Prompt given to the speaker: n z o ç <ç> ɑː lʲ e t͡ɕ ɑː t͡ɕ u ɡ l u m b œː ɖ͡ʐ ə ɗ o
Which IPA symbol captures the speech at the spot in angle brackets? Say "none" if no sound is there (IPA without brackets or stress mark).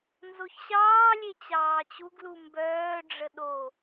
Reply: ɕ